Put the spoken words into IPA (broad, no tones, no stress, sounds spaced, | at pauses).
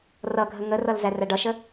r ʌ ɡʱ ə ŋ ə r ʌ l z æ r æ ɖ ʌ ʃ ə